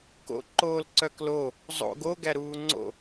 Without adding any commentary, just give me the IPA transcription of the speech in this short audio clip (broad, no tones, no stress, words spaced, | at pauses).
ko̰ ǃoːlǀœklo | zˤo̰ɡo ɡæɾuːŋ͡ǀo̰